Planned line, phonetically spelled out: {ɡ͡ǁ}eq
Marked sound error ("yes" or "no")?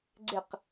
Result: yes